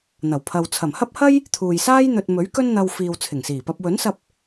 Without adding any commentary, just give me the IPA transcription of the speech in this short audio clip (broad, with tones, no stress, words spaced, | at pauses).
n̪ɐ˨˩wpʰɐ˨w t͡sʰɐ˨˩mhɐ˥p̚hɐ˥j | t̪ʰuː˨jsaː˥j n̪ɵ˧t̚ mɵ˨˥ɥkɵ˥n n̪ɐ˧w fiː˨wt͡sʰɪ˨˩ŋsiː˨˩pɐ˧p̚ wɵ˨˥nsɐ˧p̚